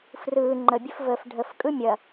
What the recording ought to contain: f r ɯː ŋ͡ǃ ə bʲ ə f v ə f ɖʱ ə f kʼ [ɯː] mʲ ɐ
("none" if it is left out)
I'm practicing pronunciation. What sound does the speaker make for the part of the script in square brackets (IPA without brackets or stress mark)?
ɯ